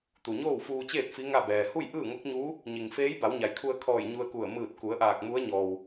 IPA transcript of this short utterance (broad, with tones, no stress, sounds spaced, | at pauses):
t̪ u˩ ɲ oː˥˨ w f uː˧ t͡ɕ eː˥˨ t̚ f i˧˥ ŋ a˥˨ b ɛː˩ h u˥˨ j ʔ ɯː˥˨ ŋ o˧˥ k̚ ɲ uː˧˥ | ɲ i˩ ŋ f eː˧˥ j b a˩˧ w ɲ a˩˧ j kʰ u˧ ə̯ kʰ ɔː˧˩ j ɲ u˧ ə̯ k u˧˩ ə̯ m ɯː˧˩ t̚ k u˩˧ ə̯ ʔ aː˧˩ k̚ m u˧˥ ə̯ ɲ ɔː˩ w